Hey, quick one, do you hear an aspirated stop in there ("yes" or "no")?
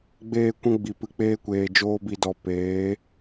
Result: no